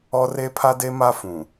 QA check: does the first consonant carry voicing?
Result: yes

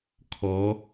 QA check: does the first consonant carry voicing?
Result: no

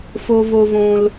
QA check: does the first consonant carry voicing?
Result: no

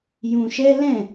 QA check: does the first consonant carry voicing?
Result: yes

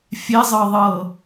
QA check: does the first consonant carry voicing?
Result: no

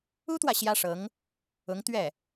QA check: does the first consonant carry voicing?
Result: no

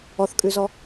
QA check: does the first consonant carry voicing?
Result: no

